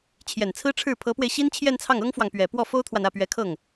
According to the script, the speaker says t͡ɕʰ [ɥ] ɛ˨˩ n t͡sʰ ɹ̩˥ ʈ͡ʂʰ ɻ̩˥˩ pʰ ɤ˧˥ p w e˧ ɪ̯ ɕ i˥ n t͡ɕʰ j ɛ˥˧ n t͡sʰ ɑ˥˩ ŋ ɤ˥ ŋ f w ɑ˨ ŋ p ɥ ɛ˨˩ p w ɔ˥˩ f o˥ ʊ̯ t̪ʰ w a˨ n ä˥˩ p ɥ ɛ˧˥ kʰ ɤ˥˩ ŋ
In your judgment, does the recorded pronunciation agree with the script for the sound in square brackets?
no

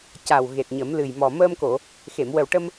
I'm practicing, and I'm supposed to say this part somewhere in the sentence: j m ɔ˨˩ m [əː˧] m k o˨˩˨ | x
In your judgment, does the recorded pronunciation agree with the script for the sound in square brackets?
yes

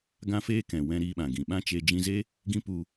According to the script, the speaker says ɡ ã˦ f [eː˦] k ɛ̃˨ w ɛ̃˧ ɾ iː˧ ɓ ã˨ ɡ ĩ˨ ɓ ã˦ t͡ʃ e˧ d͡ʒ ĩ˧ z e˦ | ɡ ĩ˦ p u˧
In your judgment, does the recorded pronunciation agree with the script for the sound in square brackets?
yes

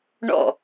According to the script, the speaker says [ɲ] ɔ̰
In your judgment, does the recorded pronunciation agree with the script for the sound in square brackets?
no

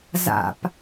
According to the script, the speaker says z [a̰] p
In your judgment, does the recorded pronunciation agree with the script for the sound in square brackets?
yes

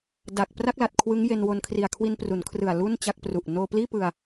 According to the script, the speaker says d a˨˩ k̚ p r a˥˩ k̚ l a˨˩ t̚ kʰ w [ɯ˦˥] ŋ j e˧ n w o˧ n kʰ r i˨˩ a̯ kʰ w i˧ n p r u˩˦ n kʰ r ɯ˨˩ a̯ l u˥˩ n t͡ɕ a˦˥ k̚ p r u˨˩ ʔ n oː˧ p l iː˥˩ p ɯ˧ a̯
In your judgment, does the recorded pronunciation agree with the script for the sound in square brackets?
yes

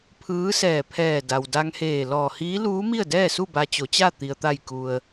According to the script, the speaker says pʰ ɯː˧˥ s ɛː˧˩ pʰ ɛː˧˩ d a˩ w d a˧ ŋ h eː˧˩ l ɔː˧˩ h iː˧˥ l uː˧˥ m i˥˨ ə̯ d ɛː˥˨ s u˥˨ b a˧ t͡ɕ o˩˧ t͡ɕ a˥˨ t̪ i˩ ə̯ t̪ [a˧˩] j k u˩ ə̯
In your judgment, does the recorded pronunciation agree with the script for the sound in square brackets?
yes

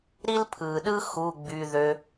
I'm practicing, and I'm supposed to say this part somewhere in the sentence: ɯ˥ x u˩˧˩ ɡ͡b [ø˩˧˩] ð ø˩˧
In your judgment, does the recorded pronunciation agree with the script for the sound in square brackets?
no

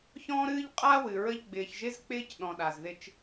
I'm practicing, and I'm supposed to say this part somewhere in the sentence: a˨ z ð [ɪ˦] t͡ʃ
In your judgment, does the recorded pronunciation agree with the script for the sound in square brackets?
yes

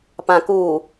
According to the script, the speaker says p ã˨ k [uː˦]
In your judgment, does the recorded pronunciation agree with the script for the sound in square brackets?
no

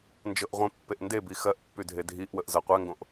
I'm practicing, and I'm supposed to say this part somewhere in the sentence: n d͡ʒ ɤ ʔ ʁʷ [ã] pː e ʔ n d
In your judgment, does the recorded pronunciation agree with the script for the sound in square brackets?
no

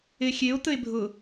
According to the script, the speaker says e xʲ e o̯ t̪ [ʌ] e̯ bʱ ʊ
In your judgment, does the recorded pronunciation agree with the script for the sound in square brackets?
no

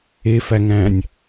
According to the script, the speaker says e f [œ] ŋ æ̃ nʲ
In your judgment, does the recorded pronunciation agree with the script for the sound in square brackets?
no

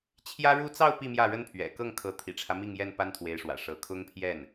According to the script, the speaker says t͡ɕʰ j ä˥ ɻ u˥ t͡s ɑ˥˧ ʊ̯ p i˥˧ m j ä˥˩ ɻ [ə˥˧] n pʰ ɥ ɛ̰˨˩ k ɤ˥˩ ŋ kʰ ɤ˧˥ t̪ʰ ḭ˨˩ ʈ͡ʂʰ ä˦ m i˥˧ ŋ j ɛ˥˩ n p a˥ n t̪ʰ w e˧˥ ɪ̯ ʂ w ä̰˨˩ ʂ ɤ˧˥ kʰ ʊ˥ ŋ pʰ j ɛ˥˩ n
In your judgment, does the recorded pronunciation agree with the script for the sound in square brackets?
no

